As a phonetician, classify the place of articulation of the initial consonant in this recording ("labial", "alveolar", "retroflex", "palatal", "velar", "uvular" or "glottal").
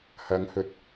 glottal